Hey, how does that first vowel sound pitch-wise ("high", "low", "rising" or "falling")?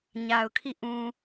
low